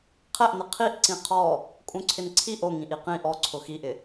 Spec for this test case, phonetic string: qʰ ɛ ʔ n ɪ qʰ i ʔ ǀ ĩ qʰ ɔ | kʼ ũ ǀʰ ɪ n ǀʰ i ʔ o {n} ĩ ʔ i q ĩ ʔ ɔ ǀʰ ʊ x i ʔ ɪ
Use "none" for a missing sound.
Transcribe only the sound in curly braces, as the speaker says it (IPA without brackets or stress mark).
ŋ